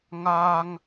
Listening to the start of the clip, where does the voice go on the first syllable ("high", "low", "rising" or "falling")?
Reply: high